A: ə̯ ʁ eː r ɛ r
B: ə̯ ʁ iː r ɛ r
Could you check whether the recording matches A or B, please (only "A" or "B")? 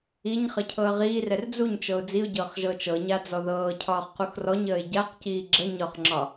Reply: B